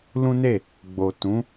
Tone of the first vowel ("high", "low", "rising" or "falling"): high